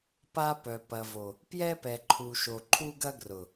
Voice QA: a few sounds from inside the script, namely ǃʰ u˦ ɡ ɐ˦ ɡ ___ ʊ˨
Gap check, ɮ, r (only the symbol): r